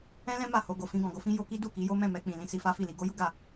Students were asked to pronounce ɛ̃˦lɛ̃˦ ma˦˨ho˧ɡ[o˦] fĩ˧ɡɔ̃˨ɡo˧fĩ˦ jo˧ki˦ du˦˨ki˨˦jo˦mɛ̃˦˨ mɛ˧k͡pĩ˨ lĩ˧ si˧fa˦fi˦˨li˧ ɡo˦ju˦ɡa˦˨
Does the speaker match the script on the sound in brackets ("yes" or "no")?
no